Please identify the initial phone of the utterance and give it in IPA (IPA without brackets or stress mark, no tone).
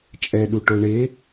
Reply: t͡ʃʼ